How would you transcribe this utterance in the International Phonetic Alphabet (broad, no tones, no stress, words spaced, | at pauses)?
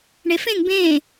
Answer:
ɳefẽŋ bẽː